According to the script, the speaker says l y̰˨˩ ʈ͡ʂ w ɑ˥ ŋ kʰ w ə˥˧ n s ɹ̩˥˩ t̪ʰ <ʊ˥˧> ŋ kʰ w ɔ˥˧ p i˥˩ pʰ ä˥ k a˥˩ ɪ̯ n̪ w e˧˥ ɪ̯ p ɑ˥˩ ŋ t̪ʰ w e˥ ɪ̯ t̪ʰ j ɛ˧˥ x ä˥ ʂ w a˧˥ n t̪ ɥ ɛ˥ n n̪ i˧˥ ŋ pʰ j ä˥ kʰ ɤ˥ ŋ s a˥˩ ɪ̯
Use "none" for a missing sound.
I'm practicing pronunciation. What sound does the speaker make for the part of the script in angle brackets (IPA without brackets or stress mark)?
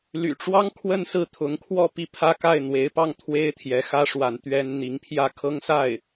ʊ˧˥